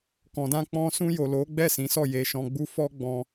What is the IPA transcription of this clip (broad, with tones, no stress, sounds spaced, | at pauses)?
k ɔ̃˨ d ã˧ k͡p ɔ̃˧ s ũ˧ j o˨ l o˨˦ ɡ͡b ɛ˦˨ s ĩ˨˦ s ɔ˦˨ j e˧ ʃ ɔ̃˧ ɡ͡b u˦ f ɔ˧ ɡ͡b ɔ̃˧